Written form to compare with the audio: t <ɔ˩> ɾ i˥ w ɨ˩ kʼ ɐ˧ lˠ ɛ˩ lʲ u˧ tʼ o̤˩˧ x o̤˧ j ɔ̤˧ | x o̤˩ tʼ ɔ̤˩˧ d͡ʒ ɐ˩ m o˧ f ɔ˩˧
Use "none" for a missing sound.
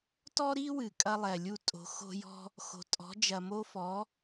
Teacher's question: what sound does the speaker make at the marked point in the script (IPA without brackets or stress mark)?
ɔ˥